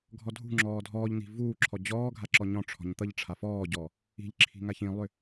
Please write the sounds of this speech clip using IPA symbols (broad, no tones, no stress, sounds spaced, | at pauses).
ɡʱ ɔ dʱ ṳ ŋ͡ǁ ɔː dʱ ɔː ʎ n̪ i̤ v uː ǁʰ ɔ d͡ʑ ɔː ɡʱ a ǁ ɔ ɲ ɔ̃ ʈ͡ʂʰ ɔ̤ ɲ t̪ ʌ ʎ ʈ͡ʂʰ a f ɔː ɟ ɔ | i̤ ʎ ǁʰ i̤ ŋ a ç ĩ lˠ ʏ